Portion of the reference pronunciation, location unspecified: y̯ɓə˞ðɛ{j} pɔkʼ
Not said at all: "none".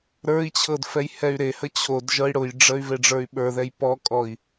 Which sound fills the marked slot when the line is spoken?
j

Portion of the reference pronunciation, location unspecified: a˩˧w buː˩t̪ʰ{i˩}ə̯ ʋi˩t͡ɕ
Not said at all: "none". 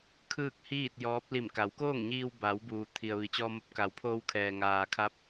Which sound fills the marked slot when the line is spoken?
i˩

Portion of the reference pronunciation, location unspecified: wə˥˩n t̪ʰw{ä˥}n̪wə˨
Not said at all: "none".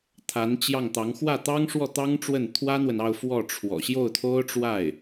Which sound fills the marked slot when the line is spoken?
ä˥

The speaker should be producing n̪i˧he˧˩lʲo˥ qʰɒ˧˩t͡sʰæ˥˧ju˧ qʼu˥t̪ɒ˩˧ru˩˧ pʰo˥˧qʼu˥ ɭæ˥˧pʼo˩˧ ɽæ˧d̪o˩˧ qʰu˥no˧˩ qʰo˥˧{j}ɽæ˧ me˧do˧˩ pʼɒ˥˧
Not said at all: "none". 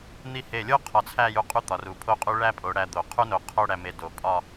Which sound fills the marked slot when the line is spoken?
none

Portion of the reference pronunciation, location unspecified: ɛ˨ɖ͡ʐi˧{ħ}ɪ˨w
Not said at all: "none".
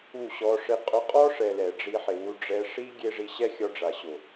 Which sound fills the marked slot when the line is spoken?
ħ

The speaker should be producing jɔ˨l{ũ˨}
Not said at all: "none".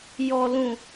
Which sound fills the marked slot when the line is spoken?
ũ˨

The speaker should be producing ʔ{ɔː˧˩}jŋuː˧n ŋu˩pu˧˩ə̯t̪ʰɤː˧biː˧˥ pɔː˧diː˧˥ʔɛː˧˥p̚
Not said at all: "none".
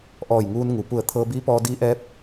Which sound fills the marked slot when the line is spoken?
ɔː˧˩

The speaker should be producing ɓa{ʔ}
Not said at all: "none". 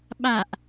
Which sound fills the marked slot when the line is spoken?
ʔ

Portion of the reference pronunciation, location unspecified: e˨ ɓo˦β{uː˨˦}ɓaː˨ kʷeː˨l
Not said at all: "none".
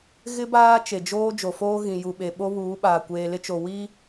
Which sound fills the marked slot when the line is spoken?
uː˨˦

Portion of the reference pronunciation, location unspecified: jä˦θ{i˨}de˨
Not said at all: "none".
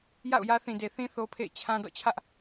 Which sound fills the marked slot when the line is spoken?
ĩ˨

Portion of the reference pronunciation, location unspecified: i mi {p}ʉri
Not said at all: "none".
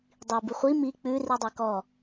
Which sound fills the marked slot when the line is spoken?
k͡p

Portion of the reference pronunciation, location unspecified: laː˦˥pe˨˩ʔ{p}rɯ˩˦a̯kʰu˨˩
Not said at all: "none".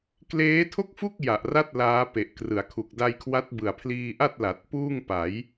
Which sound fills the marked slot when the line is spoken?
k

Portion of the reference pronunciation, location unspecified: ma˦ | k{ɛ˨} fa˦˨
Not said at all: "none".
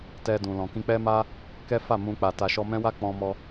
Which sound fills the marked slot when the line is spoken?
ɛ˦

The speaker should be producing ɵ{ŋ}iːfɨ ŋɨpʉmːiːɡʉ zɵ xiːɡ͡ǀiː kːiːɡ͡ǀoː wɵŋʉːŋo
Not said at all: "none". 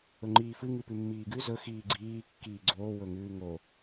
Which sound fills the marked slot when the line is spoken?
ŋ͡ǃ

